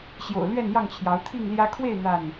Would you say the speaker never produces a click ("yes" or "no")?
yes